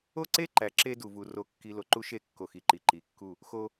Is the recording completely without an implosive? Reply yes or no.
yes